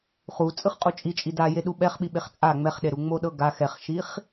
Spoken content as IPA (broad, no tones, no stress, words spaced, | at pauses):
χut͡sʼɯχ qʼut͡ʃʼi t͡ʃʼida jeɗuɓɛχɓi ɓeχt͡sʼa ŋ͡mɛχɗeɾu ŋ͡moɗɤɡa xɛχʃiχ